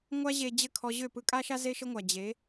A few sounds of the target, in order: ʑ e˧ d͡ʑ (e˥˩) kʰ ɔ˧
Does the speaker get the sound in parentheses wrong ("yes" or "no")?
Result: yes